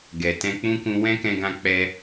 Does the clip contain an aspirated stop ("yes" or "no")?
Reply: no